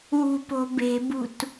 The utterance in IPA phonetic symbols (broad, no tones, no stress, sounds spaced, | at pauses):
w ṳ p o̤ b e̤ b ṳ t